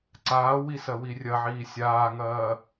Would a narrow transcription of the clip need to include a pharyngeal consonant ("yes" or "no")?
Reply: yes